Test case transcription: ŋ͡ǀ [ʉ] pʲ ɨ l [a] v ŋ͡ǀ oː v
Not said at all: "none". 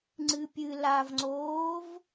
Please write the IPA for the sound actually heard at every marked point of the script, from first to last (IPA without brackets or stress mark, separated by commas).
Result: ɨ, a